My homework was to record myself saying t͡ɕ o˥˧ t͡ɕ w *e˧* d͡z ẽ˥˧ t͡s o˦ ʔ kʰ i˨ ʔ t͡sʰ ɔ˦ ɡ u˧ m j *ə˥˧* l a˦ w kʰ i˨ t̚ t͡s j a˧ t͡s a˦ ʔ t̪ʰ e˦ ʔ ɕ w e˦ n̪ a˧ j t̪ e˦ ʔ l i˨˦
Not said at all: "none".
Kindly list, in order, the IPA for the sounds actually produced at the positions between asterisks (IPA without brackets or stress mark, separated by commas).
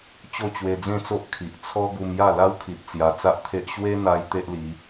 e˧, a˥˧